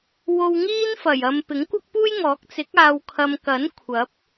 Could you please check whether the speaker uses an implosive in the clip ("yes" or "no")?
no